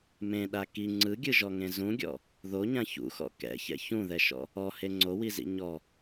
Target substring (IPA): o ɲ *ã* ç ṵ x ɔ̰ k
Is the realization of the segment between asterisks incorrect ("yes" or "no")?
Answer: no